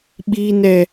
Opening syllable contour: high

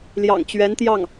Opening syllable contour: low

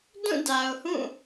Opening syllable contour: falling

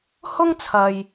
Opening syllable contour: high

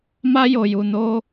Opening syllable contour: high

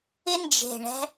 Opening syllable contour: high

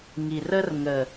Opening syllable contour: low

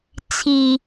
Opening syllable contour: low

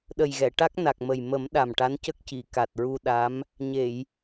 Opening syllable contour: low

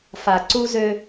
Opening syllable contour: low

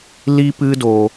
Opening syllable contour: high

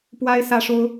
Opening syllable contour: high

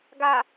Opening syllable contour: low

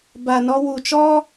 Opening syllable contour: low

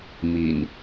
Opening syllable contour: low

